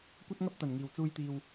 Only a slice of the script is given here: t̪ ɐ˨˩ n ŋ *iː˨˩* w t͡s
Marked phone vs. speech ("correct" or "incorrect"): correct